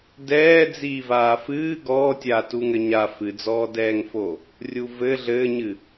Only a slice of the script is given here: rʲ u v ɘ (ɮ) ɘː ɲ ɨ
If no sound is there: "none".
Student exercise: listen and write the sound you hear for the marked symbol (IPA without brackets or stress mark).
ɮ